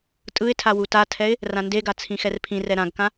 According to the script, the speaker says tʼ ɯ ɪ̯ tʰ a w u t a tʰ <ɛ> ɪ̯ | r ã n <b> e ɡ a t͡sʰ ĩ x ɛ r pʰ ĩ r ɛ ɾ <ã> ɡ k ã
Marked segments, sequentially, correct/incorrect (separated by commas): correct, incorrect, correct